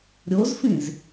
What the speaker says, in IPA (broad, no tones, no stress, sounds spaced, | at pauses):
ɾʲ o z f ĩ z